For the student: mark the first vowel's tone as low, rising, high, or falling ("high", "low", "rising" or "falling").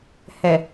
low